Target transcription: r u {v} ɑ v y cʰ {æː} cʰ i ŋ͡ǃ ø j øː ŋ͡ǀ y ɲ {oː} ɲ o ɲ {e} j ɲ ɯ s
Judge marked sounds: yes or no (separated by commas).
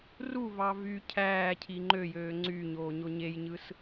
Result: yes, yes, yes, yes